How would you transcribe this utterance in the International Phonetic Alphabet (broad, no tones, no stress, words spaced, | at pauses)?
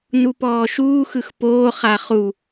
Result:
nupɔːʃuːxɯx poːχaːχ u